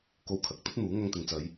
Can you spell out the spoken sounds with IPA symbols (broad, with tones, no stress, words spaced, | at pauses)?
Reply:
ko˧wkʰɐ˨k̚t̪ɐ˥t̚n̪uː˨˥ ŋɐ˧ŋt̪ɪ˨ŋt͡sɐ˨˧j